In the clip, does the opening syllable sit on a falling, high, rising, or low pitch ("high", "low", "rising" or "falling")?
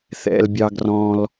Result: high